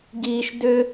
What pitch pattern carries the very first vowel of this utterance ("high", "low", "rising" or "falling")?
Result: low